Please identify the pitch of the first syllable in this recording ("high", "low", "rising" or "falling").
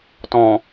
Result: low